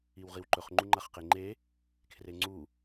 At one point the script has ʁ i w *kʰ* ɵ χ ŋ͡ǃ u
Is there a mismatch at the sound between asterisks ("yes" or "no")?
yes